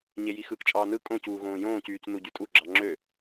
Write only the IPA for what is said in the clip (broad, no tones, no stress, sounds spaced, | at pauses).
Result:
ɲ e j i x ɯ k t͡ʃʼ ɑː n ɯ kʼ õ c uː ɣ õː j õː c yː c n u ɟ y tʼ u ɡ͡ǁ ɑ ŋ͡ǁ ø